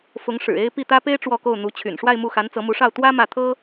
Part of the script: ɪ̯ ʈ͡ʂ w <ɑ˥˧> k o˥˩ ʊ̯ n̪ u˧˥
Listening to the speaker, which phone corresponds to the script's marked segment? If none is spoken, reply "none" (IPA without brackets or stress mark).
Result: ɔ˥˧